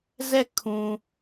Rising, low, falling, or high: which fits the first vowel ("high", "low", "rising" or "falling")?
falling